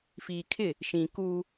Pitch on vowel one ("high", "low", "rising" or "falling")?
low